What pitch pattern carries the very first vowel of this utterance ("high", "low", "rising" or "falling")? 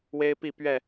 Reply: high